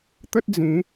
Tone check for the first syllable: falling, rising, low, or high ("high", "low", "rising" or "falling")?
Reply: high